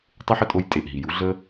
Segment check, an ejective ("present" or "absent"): present